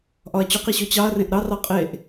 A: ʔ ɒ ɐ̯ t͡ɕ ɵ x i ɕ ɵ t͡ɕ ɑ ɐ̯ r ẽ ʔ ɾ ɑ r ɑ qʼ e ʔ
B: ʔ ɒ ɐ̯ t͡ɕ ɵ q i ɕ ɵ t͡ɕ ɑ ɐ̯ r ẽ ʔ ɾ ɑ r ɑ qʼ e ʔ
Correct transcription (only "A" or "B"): B